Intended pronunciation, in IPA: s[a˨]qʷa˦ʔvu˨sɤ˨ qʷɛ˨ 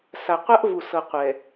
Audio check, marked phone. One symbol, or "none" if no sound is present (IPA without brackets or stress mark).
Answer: a˨